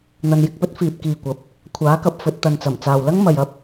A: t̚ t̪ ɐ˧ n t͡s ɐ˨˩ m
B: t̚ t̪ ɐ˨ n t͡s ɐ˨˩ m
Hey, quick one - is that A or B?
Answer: B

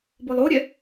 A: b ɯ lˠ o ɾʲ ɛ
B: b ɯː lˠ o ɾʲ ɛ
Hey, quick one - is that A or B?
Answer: A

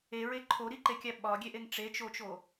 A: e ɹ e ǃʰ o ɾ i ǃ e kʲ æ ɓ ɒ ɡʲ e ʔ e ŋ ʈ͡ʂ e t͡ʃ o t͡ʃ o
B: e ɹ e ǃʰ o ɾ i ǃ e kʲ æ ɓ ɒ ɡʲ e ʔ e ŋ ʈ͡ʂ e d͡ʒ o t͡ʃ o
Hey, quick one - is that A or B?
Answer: A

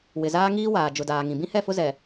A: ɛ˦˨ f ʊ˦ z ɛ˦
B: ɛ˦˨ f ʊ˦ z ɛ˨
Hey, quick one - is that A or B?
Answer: B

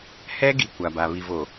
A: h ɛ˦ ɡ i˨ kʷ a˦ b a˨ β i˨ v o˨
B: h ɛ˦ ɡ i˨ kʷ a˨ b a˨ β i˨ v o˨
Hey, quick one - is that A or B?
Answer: B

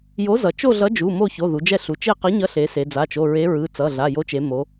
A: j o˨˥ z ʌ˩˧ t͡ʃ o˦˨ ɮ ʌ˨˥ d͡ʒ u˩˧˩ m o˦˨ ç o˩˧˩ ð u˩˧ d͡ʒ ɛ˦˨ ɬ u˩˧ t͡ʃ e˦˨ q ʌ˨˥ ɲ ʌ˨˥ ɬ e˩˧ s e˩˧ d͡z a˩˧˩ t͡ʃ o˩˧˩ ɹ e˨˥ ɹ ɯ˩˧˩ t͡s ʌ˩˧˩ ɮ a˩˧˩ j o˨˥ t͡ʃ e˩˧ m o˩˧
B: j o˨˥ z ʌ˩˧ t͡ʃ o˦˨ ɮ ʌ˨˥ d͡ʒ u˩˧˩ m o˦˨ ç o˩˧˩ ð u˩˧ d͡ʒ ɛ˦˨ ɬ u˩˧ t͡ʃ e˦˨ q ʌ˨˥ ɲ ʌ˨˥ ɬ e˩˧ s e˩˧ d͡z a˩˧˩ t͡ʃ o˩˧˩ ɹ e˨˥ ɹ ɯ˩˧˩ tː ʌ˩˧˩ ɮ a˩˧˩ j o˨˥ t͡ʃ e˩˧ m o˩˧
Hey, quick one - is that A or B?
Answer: A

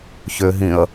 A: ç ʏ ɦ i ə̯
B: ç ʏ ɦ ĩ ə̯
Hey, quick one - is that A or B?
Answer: B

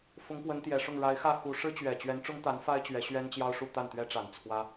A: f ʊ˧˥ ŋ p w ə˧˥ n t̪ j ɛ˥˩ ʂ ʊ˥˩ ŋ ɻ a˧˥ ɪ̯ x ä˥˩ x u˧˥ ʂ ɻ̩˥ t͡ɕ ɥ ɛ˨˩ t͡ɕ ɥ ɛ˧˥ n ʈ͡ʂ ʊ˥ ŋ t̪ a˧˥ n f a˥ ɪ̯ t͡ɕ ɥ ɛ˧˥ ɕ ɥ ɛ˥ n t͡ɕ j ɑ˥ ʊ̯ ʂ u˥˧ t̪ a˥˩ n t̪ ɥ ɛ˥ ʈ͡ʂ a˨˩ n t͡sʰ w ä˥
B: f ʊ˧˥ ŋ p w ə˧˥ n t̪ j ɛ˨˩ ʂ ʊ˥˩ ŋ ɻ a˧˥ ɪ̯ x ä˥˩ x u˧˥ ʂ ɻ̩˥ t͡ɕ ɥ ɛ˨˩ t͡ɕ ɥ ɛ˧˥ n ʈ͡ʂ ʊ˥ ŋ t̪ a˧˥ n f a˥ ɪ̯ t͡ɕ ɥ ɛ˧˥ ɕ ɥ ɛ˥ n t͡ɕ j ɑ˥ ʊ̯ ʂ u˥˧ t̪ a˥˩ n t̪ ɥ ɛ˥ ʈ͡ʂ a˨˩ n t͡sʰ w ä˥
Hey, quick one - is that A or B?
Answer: B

